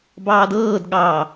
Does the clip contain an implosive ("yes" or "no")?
yes